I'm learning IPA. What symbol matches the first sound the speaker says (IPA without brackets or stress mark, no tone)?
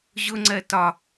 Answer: ʑ